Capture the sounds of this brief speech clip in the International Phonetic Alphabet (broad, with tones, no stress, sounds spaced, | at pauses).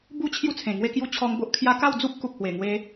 b u˥˧ t͡ɕʰ j u˥˧ t͡sʰ ẽ˨˩ ŋ w e˥˧ k j u˥˧ t͡ɕʰ ɔ˧ ŋ b o˦ ʔ kʰ j a˦ k a˥˧ w d͡z u˦ p̚ k u˨ k̚ h w e˨˩ ŋ w e˧